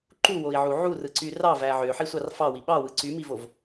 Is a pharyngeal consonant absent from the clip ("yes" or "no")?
no